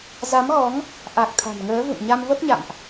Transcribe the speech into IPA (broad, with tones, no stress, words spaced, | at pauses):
za˨˦mɣɔ˨˦ŋ | ʔa˨˩k̚ t̪ʰa̤˨˩nŋəː˨˦vṵ˧˨nɲa˧m və˦˥p̚ɲa̰˧˨mʔ